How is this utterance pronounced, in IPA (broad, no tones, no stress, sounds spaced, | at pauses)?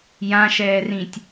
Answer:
j ã ʃ ɛː r ĩ tʲ